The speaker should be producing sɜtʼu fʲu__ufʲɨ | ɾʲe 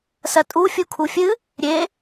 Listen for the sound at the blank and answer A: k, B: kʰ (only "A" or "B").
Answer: B